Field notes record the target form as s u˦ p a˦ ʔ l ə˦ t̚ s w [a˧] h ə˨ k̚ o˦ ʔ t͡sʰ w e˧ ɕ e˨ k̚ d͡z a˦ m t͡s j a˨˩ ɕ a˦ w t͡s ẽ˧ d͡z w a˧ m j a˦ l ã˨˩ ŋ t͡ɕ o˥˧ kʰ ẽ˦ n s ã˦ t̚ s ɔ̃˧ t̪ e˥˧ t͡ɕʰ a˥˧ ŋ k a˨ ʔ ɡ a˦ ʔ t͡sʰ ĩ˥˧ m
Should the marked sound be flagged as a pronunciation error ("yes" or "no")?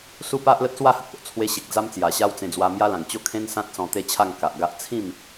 yes